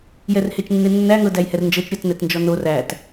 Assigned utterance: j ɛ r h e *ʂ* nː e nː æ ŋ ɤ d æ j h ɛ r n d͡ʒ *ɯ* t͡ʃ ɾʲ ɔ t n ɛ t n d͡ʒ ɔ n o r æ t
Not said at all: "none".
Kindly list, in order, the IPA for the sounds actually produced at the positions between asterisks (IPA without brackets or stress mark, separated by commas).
t͡ʃ, ɤ